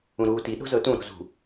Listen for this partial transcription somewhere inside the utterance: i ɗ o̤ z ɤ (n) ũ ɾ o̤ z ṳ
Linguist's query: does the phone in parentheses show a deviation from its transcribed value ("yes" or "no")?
yes